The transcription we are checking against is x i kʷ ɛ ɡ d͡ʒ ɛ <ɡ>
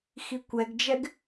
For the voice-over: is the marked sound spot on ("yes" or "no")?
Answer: yes